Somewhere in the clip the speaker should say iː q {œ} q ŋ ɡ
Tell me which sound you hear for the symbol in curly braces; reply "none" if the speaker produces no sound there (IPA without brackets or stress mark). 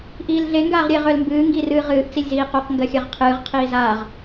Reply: œ